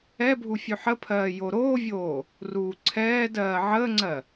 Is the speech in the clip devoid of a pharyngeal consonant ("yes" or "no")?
no